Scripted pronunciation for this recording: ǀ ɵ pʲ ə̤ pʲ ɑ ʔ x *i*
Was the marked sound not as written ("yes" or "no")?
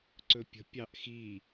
no